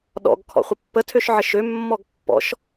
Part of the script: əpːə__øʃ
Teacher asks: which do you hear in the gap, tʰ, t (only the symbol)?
tʰ